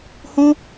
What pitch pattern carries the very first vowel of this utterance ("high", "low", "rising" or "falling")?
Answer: high